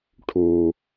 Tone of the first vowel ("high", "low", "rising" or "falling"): low